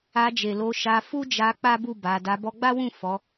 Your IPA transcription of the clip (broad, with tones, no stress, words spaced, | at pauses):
a˧d͡ʒe˨ lo˧ʃa˧ fu˦d͡ʒa˧ k͡pa˦bu˦˨ ba˨˦ da˧ bɔ˧ɡ͡ba˦wũ˦˨ fɔ˨˦